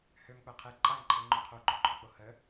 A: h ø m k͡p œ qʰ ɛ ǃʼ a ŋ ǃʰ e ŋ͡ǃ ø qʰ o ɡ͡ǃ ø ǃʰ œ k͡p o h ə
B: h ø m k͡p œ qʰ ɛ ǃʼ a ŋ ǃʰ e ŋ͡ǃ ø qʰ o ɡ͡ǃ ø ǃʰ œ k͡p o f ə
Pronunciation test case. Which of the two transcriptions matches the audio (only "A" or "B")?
A